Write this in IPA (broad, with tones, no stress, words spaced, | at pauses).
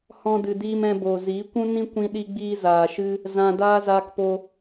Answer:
hɔ̃˧dɨ˨diː˧m ɛ̃˧boː˨ziː˨˦ kʷũ˦nĩ˦ kʷĩ˦ɗi˦ɡ͡biː˦ zaː˨ʃɨ˦ | zã˧daː˦ zaː˧kpo˧